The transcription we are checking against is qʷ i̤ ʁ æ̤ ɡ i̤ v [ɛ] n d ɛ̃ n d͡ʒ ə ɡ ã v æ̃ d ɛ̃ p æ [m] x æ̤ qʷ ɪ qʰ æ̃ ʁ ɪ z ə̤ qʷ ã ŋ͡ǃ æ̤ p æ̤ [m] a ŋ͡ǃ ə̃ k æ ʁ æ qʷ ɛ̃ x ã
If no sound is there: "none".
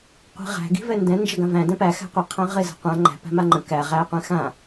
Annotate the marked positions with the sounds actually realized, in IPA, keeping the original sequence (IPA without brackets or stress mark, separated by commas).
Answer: ɛ, none, m